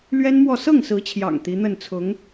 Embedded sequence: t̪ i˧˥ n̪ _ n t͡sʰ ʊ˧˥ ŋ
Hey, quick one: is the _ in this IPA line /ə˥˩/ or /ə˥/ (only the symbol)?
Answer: ə˥˩